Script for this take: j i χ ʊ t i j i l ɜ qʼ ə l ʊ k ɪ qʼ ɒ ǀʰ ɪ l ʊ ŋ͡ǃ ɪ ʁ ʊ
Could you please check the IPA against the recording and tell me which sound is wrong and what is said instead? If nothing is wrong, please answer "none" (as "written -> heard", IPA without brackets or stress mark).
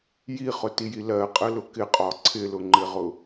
none